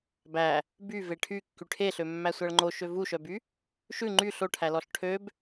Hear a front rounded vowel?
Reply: yes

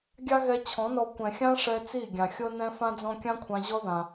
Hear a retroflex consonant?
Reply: yes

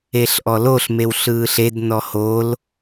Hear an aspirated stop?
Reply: no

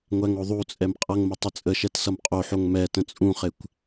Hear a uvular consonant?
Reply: yes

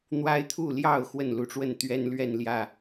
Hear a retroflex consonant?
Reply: yes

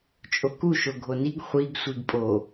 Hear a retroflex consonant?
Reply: no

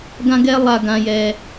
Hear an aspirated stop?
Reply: no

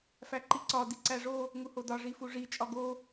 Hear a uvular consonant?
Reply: no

